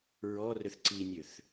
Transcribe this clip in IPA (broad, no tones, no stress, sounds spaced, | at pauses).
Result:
ɹ ɔ r ø θ ǀ i nʲ ø θ